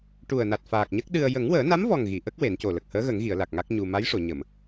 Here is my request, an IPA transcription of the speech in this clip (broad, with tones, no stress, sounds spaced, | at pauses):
ʈ u˨˩ ə̯ n a˨˩ t̚ f aː˨˩ k̚ ɲ ə˦˥ k̚ ɗ ɨ˧ ə̯ j ə˨˩˦ ŋ w əː˨˩˦ n a˧˥ m v ɔ˨˩ ŋ ɣ i˨˩˨ ʔ ə˦˥ k̚ w e˨˩˦ n c o˨˩ l ə˨˩ k̚ h əː˧˥ ɣ ə˨˩˦ ŋ ɣ i˨˩˨ ə̯ l a˨˩ k̚ ŋ a˦˥ k̚ ɲ u˧ m a˧˥ j ʂ o˨˩˨ ɲ ə˨˩˨ m